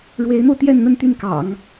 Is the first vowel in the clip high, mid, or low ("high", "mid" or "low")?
mid